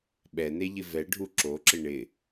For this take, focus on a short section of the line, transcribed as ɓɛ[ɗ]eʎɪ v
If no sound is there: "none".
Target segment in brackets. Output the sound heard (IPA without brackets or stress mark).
n